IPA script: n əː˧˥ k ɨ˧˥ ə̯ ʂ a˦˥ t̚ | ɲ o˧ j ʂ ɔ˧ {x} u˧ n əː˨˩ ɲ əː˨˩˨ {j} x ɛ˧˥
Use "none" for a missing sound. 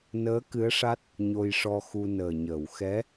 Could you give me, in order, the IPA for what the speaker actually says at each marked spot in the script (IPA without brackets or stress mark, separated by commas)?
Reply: x, w